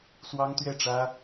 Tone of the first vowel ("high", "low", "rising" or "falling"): high